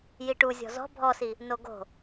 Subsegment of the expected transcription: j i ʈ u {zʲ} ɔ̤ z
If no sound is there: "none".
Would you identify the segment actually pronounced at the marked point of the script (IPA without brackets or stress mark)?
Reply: zʲ